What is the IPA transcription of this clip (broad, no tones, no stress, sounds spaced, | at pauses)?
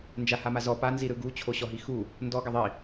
n d͡ʒ a h a m a z ɔ p a n z i ɾ ɯ ɡ u t͡ɕʰ o ɕ ɔ ɦ i x u | n d ɔ ɡ a ðˤ i